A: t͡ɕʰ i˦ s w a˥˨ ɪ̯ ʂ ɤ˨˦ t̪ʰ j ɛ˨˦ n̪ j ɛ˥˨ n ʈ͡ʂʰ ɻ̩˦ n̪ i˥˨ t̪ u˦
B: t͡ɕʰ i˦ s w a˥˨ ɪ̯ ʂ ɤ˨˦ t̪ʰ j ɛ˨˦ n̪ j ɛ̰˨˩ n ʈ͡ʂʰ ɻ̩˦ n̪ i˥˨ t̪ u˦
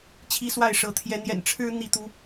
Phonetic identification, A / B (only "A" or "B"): B